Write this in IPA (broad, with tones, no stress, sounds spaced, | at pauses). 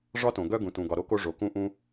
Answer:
ʐ ɒ˥ t õ˩ ɡ œ˥ ɡ ũ˩ t ũ˩ ɡ ɒ˩ ɾ o˥ k o˥ ʐ o˩ k ũ˥ ʔ ũ˥